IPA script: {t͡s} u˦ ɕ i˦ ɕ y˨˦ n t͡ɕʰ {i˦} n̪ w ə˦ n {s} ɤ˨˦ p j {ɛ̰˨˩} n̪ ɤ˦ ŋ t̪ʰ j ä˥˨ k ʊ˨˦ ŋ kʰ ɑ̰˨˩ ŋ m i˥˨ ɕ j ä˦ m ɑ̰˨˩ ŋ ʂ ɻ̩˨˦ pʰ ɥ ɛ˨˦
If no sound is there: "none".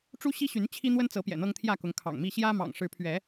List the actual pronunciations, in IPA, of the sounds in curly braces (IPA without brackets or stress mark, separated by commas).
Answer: ʈ͡ʂ, i˦, t͡s, ɛ̰˨˩